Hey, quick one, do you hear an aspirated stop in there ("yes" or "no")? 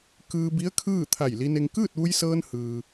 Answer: yes